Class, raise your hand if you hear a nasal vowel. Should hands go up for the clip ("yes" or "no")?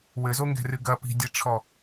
no